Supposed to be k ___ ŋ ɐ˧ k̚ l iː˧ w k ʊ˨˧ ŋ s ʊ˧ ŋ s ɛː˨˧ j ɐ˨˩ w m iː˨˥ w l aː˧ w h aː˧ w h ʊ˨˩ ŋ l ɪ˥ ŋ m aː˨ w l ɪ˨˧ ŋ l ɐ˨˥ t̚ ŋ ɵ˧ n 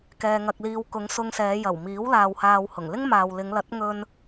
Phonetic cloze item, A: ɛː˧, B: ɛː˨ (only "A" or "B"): A